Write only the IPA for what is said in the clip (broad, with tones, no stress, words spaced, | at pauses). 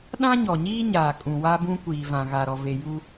ɗã˦ɲɔ˨ɲiː˦ɲaː˨ kʼũ˨wa˦bũ˦ kʷiː˨vã˨ɣa˨ɾɔ˨ ve˨ju˦